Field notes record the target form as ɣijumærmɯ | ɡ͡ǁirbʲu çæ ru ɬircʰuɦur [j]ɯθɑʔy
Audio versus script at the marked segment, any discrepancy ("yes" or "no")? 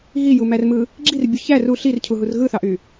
yes